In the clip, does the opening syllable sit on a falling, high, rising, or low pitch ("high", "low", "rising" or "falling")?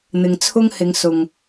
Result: low